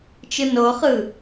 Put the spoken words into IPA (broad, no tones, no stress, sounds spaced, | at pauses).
t͡ʃ ɯ n o χ ɯ